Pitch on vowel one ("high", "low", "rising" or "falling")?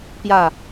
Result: falling